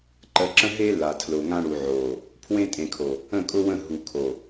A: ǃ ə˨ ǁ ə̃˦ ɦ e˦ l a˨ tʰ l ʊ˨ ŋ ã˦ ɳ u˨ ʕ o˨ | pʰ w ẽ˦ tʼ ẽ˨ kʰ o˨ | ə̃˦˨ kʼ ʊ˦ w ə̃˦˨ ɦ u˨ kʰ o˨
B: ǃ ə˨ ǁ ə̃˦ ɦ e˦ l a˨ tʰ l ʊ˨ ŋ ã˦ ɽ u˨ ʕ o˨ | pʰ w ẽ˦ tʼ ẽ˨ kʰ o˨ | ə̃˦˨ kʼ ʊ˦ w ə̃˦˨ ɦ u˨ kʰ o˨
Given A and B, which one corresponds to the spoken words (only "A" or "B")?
B